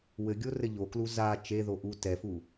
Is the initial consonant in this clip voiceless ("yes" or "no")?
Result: no